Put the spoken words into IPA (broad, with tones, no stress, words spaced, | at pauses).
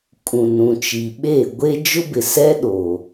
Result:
kʼũ˨nũ˨t͡ʃi˨ ɓe˦˨ ɡʷe˦ d͡ʒʊ˦bɪ˨ sɛ˦ ɗo˨